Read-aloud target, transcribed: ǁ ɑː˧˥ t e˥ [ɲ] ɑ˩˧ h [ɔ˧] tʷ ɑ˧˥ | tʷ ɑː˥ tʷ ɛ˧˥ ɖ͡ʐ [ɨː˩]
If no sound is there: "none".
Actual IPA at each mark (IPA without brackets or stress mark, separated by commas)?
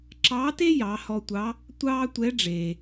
j, ɔ˧, eː˩